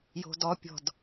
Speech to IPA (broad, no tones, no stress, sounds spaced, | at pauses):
j o̤ d ɔ pʲ ɔ̤ d